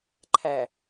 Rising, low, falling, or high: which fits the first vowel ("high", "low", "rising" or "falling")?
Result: low